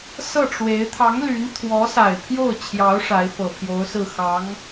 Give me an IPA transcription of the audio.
s ɤ˥˩ ʈ͡ʂ w e˧˥ ɪ̯ t̪ʰ ɑ˧˥ ŋ l y˧˥ n t̪ʰ w ɔ˧˥ s a˨˩ ɪ̯ pʰ j o˥˩ ʊ̯ t͡ɕʰ j ɑ˧˥ ʊ̯ ʂ a˧˥ ɪ̯ f ɤ˨˩ pʰ j o˧˥ ʊ̯ s ɹ̩˥˩ x ɑ˧˥ ŋ

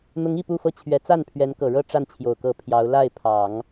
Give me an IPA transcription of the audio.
n̪ ʊ˧˥ ŋ i˥˧ p u˥˧ f ɤ˥˩ t͡ɕʰ ɥ ɛ˧˥ t͡s a˥˩ n pʰ ɥ ɛ˧˥ n k ɤ˨˩ ɻ ɤ˥˧ ʈ͡ʂ a˥˩ n t͡ɕʰ j o˨˩ ʊ̯ k ɤ˧˥ pʰ j ɑ˧˥ ʊ̯ l a˥˩ ɪ̯ pʰ ɑ˨˩˦ ŋ

